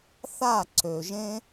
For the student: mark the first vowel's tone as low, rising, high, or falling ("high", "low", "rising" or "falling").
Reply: falling